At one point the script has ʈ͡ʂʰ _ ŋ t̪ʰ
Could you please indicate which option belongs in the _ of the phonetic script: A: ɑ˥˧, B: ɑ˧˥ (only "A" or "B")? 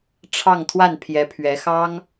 A